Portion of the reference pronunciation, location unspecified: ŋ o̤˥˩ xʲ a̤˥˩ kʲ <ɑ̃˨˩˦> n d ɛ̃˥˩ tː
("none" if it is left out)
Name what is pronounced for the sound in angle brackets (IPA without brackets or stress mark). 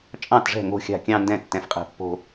ɑ̃˥˧